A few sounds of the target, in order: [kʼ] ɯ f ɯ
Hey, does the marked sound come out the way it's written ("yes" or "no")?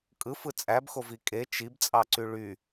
yes